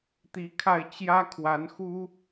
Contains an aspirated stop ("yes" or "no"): yes